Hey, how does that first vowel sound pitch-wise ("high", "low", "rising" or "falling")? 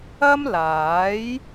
high